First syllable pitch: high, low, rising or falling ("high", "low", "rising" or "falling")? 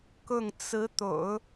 falling